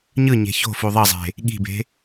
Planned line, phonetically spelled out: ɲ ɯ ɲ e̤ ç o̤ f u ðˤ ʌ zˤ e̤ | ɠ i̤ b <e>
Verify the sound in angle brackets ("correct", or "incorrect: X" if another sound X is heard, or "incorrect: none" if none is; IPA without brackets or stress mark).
incorrect: e̤